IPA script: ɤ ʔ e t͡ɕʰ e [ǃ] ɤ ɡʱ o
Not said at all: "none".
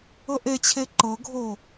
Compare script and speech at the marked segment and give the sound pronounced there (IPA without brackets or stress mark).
ǃ